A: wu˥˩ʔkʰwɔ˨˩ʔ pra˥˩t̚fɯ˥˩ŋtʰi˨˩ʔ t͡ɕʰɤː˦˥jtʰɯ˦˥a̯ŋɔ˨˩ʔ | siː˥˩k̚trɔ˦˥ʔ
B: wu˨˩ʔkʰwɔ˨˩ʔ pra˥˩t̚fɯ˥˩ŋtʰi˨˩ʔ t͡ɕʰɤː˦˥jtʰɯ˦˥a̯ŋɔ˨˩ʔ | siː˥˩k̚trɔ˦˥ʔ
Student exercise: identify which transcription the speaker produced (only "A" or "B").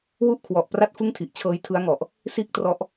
A